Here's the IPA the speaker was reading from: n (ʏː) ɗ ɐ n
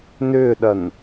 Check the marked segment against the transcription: correct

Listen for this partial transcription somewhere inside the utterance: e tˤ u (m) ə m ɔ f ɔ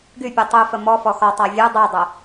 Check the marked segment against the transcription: incorrect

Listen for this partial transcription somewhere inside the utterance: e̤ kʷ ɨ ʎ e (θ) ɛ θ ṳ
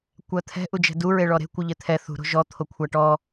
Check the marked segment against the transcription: incorrect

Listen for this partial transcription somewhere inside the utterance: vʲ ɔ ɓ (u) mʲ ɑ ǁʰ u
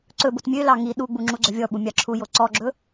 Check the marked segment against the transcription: correct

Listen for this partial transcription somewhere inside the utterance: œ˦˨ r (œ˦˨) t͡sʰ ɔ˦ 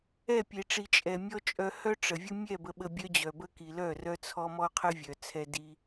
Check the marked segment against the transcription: incorrect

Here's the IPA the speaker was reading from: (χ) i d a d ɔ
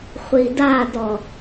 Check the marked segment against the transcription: incorrect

